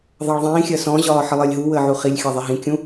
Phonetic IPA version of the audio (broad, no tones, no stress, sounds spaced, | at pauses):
ðˤ ɑ ɭ ðˤ ĩː xʲ ɜ s ɔ̃ ʑ ɒː ħ ɜ lˠ əː lʲ ɦ u w əː ʕ u χ i lʲ xʲ ɑ ðˤ ɛ ɦ ĩ kʲ ũ